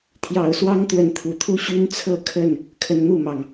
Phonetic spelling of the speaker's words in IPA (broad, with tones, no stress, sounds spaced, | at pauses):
t̪ʰ j ɑ˨˩ ʊ̯ s w ɑ˦ ŋ t̪ w ə˨˦ n t̪ʰ u˨˩ t̪ʰ u˦ ɕ y˦ n t͡sʰ ɤ˥˨ kʰ ə˥˨ n | kʰ ə˨˦ n n̪ u˥˨ m ɑ˩ ŋ